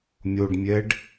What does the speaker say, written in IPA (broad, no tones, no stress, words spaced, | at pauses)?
mʲoɖmʲɛɖ